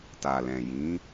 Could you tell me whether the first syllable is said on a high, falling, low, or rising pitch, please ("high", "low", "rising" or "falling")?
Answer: low